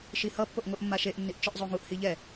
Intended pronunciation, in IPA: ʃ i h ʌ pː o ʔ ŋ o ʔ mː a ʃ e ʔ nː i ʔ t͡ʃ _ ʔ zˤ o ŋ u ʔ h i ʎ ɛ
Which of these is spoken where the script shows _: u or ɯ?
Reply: ɯ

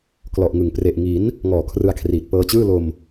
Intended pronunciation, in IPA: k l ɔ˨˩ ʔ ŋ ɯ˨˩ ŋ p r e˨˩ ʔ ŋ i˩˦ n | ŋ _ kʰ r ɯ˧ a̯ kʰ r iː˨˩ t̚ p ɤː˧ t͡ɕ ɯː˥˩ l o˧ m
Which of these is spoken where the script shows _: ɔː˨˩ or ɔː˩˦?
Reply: ɔː˨˩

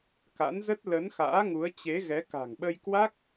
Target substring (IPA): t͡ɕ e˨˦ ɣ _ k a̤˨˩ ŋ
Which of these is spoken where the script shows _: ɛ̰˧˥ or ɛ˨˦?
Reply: ɛ˨˦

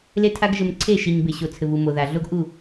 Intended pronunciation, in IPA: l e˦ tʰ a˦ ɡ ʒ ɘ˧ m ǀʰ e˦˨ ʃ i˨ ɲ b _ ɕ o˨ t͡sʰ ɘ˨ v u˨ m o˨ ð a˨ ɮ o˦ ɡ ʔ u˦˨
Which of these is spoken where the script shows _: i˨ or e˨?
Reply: e˨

